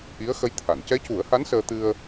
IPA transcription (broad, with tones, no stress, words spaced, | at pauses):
ʔi˧˥ə̯xə˧˥jt̪ʰa˨˩˨n cɛ˧˥cu˨˩˦ə̯ha˧˥n səː˧t̪ɨ˧ə̯